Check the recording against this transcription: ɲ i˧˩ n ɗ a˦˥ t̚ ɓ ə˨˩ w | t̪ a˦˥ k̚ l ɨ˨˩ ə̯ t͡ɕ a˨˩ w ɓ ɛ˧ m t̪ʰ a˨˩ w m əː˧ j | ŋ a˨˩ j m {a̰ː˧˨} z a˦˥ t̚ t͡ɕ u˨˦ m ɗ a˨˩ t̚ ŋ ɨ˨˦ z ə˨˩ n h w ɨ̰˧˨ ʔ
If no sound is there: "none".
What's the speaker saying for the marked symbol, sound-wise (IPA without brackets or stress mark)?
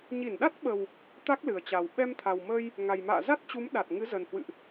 a̰ː˧˨